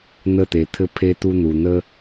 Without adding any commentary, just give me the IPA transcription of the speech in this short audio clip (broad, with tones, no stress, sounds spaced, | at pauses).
n̪ ə˦˨ t̪ e˨ t̪ʰ ɘ˧ pʰ e˦ t̪ u˦ n̪ u˨ n̪ ə˦